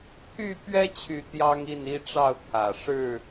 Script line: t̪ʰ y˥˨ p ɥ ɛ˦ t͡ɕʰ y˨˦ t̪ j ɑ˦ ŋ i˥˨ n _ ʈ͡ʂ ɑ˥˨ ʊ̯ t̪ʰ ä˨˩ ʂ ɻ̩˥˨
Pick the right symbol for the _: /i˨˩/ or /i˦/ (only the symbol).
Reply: i˦